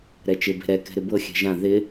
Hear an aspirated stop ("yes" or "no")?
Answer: no